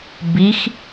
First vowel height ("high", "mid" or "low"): high